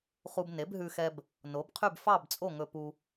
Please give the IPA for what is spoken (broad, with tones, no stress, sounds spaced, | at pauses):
χ u˧ b n e˩˥ b ɦ ʉ˧ x ɛ˧ b | n o˩˥ b qʰ y˥˨ b f ɑ˥˨ b t͡sʼ o˥˨ ŋ ɵ˧ p u˧